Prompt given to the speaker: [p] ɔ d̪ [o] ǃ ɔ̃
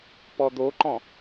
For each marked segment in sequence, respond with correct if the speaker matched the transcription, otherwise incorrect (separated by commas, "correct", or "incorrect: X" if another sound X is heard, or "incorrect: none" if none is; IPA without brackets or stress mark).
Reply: correct, correct